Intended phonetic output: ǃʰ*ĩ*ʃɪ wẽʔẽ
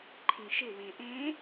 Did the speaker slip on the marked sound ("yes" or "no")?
no